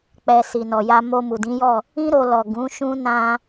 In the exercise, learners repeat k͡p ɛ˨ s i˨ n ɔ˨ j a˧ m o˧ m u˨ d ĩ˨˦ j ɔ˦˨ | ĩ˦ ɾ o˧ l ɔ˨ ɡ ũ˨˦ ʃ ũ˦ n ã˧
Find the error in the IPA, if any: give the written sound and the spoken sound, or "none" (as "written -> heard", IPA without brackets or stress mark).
none